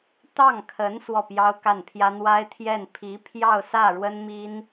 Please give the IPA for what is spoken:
t̪ ɑ˥˩ ŋ kʰ ə˧˥ n s w ɔ˥˩ p j ɑ˥ ʊ̯ k a˥˩ n pʰ j ä˥ n̪ w a˥ ɪ̯ t̪ʰ j ɛ˥˩ n pʰ i˧˥ pʰ j ɑ˥˧ ʊ̯ s ä˥˩ ɻ w ə˥ n m i˥ n

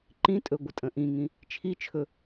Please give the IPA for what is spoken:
ǃ ĩ tʼ ɵ ɡʷ ə tʼ ə̃ ʔ ĩ ŋ ĩ | t͡ʃʰ i t͡ʃʰ ɵ

